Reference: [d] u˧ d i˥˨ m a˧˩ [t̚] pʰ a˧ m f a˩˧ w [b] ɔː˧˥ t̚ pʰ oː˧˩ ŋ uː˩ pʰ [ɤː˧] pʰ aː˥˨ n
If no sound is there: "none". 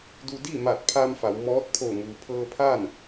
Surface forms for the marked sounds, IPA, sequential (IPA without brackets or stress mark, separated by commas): d, t̚, m, ɤː˧